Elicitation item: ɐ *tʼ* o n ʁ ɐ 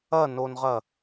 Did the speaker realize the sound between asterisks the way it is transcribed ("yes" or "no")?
no